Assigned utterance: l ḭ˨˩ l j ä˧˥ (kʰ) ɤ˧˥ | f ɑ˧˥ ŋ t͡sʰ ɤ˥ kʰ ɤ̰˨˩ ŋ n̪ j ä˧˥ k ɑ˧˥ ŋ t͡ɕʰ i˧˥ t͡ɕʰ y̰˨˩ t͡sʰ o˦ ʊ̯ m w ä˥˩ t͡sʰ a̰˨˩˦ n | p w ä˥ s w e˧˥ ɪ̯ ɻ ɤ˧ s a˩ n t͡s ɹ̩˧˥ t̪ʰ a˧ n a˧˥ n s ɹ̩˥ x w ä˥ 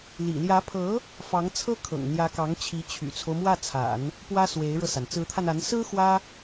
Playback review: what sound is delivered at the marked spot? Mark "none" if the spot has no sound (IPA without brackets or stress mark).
pʰ